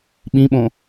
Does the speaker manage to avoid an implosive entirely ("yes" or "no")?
no